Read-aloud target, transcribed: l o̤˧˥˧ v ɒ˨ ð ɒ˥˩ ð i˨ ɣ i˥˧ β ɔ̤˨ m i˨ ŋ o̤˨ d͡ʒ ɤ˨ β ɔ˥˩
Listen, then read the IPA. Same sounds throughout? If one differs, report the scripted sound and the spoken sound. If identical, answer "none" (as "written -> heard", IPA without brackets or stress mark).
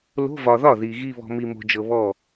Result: ŋ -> m